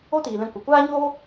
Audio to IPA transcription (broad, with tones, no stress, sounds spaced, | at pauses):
o˦ t iː˨ l ɛ̃˧ kʷ ə˨ kʷ aː˦ ɲ oː˦